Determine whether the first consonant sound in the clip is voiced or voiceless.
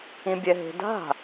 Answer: voiced